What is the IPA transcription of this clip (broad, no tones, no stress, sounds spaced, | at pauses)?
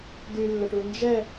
d y lː ə ʈ u n d͡ʒ ɛ